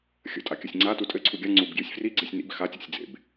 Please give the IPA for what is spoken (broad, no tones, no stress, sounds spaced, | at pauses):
xʲ ə̰ tʼ a kʲ ɘ sʲ ŋ͡ǀ a t u tʼ ɘ ǀʰ u ɡʲ a ŋ͡ǀ u b ɡ j y sʲ f r i ɡ͡ǀ i sʲ n ḭ b x a tʲ ḛ sʲ d͡z ḛ b